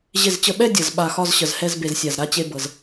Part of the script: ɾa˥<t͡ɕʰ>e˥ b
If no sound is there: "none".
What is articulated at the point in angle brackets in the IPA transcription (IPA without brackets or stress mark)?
t͡ɕ